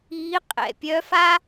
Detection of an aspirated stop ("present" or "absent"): absent